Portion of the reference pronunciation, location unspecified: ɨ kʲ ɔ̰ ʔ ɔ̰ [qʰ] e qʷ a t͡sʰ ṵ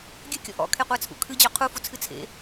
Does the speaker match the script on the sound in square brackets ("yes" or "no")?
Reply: no